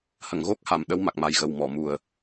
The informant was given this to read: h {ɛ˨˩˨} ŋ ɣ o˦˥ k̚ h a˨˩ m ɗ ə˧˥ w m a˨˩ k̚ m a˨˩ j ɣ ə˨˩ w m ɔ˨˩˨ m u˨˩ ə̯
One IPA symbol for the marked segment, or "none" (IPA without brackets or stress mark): ə˨˩˨